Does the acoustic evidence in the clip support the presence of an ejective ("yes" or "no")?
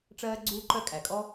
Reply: yes